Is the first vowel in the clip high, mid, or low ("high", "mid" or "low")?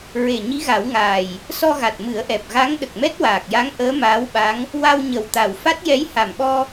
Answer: mid